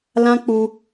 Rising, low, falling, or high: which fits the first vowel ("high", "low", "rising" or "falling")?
high